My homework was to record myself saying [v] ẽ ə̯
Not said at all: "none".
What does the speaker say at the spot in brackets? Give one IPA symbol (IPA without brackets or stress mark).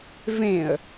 v